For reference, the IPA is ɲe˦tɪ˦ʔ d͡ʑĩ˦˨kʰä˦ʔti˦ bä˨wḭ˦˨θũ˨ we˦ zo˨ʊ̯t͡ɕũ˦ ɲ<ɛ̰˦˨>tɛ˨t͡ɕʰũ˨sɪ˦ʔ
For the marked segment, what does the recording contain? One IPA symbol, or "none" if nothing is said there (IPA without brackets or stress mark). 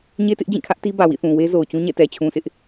ɛ̰˦˨